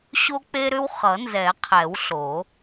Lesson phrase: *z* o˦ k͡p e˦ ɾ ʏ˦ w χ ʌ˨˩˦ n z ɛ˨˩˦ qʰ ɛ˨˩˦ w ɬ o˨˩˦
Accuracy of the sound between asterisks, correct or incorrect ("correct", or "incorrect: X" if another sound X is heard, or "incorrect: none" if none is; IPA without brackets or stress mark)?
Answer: incorrect: ɕ